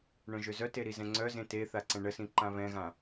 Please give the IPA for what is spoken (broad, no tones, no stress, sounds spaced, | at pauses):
ɳ œ̃ ʒ ø z œ t e ɾ i z ɛ̃ ŋ͡ǀ œ z ẽ t e θ a ǀ ɛ̃ ɳ ə s ĩ ǃ ã β ɛ̃ ɣ ã